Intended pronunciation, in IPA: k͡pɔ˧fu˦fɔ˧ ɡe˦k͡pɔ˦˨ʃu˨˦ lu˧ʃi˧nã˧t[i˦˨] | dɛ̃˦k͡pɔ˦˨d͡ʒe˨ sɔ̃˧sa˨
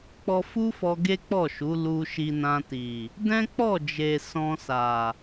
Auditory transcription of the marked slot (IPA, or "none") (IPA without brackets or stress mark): i˨